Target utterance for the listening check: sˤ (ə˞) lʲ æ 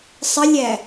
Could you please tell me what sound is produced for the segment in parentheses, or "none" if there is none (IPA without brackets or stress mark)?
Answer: ə